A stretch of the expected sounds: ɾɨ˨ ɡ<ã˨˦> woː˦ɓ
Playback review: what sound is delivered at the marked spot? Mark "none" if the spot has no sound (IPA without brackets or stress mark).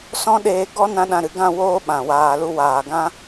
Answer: ã˦˨